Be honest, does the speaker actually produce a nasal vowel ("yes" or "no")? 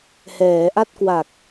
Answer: no